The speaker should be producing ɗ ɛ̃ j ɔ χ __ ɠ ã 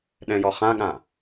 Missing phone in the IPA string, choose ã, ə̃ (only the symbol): ã